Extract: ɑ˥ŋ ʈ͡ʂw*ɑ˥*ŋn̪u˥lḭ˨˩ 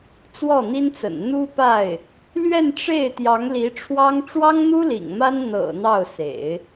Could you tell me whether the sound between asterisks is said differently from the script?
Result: no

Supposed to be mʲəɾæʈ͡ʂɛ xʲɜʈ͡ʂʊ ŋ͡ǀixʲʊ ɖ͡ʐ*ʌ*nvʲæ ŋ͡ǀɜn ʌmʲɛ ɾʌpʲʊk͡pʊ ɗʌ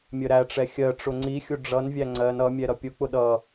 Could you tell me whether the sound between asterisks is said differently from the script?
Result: no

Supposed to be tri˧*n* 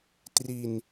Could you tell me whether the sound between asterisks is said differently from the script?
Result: no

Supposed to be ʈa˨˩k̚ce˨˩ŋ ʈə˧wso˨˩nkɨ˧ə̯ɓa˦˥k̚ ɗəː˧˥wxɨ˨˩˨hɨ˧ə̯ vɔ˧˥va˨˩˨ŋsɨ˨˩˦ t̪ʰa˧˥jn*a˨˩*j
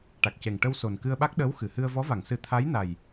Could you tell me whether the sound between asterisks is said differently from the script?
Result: no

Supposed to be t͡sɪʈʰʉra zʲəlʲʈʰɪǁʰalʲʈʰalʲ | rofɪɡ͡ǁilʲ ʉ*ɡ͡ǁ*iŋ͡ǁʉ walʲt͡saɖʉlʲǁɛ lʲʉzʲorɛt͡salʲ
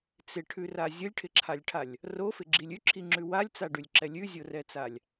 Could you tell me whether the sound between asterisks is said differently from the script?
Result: yes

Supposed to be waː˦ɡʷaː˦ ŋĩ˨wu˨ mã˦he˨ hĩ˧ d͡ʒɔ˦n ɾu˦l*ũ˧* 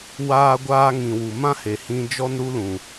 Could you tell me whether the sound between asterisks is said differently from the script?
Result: yes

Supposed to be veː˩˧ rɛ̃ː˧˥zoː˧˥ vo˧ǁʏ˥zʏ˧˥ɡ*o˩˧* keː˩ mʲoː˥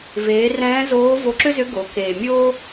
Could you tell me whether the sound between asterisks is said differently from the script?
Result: no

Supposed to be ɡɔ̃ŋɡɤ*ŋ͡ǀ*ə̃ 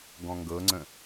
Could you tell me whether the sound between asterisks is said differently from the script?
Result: no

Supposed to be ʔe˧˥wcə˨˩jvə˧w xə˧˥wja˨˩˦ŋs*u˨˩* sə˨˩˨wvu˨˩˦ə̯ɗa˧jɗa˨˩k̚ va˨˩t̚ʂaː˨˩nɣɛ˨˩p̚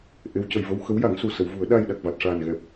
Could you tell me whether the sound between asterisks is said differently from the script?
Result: no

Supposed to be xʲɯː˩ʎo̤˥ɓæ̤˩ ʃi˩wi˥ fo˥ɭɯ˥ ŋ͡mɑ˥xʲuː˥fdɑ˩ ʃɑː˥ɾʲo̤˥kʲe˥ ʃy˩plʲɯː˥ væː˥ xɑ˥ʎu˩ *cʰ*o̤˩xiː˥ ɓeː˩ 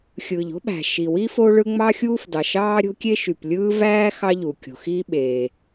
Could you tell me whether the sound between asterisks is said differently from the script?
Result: yes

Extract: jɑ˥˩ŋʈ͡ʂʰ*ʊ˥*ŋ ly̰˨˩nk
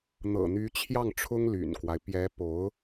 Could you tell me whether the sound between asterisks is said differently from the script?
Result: no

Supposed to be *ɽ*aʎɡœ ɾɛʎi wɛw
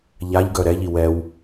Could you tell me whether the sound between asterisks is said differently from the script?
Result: yes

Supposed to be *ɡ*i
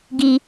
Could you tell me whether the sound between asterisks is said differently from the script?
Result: no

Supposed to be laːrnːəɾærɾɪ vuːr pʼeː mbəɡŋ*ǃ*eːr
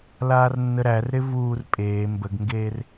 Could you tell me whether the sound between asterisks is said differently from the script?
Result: yes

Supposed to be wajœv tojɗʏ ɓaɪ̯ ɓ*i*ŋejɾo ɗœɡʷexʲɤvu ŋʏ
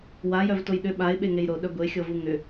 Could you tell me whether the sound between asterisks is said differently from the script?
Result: yes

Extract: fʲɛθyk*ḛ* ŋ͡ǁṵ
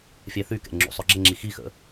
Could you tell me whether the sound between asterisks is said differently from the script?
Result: yes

